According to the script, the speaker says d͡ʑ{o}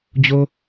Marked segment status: correct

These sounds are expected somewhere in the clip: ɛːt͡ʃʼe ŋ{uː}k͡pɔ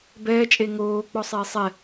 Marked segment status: incorrect: oː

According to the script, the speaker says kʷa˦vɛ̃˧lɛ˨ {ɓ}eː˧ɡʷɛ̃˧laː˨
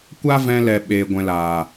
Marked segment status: correct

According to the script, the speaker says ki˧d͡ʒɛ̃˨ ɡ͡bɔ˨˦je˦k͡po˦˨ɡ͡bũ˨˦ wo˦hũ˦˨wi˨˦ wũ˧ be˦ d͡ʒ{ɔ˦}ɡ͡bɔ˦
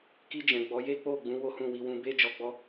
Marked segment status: incorrect: ɔ˧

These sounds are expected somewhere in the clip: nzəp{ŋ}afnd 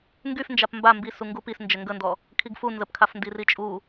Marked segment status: incorrect: kʰ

